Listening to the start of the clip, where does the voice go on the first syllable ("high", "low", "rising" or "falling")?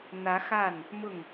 rising